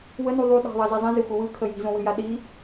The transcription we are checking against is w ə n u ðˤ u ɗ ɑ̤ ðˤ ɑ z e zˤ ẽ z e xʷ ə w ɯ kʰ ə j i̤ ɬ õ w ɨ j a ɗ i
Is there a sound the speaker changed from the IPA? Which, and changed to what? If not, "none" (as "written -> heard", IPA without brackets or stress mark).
ɬ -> z